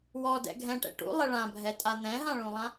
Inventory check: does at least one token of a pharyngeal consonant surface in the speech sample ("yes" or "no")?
no